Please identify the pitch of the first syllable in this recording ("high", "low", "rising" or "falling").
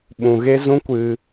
low